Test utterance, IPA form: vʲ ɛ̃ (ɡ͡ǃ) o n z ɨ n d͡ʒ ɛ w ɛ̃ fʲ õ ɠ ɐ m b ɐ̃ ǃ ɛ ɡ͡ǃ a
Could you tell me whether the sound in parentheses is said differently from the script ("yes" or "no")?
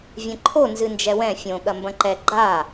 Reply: yes